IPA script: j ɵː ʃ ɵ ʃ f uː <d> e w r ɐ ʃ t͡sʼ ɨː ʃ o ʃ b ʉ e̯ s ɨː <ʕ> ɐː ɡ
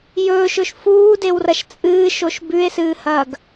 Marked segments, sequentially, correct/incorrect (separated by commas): correct, incorrect